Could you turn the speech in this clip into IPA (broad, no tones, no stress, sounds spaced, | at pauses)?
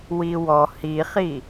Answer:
w i w ɔ h i χ i